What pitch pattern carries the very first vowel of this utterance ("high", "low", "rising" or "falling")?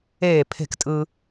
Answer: falling